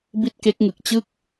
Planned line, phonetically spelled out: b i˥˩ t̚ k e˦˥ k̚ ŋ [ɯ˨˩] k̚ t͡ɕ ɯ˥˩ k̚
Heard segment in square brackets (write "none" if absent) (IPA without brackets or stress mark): ɯ˨˩